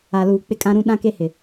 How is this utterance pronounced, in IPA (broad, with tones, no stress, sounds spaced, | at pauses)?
a˨ l uː˨ k͡p ɪ˦ kʼ ã˦ ɾ ũ˦ ɗ ã˦ k e˦ h ɪ˨